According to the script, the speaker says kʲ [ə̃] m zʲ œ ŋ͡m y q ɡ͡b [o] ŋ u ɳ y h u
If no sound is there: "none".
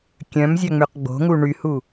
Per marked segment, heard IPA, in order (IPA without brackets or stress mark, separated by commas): œ̃, o̤